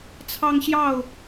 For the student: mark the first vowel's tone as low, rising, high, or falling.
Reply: high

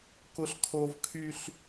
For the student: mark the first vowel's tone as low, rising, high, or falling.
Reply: high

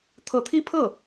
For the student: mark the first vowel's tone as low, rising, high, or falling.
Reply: rising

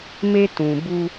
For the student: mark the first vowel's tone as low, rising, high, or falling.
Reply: high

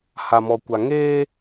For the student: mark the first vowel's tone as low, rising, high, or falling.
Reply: low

